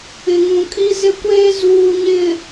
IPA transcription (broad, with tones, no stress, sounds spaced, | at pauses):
ɪ˨ ŋ ũ˨ kʼ i˦ z ɪ˦ kʷ eː˦ z uː˨ ɲ ɪ˨